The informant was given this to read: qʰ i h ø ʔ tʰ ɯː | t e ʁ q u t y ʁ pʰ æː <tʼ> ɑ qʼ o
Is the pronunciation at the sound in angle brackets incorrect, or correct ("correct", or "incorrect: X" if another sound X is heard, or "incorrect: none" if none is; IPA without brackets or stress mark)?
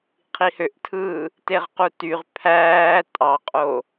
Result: correct